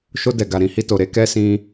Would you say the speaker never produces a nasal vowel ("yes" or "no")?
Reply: no